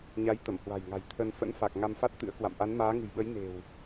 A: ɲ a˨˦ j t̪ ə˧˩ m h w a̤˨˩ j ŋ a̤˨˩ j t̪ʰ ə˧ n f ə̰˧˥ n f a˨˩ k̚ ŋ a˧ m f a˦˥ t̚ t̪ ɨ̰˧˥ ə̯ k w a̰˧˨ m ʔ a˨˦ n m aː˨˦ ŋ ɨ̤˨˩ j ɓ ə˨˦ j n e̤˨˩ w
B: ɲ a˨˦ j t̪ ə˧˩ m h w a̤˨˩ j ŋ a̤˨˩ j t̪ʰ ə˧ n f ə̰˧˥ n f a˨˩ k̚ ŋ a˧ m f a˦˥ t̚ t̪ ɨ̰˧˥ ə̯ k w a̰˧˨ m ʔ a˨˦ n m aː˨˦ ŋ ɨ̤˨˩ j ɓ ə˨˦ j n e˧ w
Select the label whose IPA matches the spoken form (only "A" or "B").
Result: A